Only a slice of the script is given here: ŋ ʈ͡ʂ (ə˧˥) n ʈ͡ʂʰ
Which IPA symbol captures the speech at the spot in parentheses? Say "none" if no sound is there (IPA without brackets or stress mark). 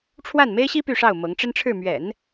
ə˥